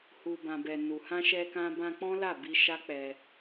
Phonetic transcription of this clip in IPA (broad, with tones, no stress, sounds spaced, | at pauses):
h u˨ b ã˨ b ɛ˨ n u˨ h ã˧ ʃ ɛ˧ k ã˧ b ã˧ k͡p ɔ̃˦ l a˦˨ b i˧ ʃ a˦ k͡p ɛ˧